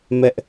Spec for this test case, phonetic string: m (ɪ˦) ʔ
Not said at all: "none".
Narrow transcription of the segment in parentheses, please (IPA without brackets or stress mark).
ɛ˦